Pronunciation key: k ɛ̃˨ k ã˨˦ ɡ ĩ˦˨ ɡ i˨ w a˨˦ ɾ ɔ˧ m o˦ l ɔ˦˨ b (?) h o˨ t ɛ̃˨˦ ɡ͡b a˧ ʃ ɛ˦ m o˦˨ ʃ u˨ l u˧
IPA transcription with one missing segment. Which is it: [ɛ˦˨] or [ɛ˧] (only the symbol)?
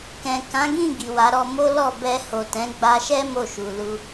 ɛ˧